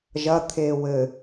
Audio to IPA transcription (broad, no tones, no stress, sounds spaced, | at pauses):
ʒ ɐ t̪ʰ eː w ɘ